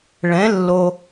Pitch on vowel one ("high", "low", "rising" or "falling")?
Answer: rising